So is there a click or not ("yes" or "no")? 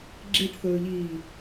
yes